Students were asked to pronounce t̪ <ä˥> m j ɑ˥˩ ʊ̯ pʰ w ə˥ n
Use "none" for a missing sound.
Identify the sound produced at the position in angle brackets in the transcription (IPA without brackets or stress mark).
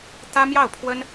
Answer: ä˥